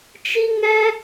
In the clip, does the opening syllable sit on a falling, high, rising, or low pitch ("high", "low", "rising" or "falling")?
high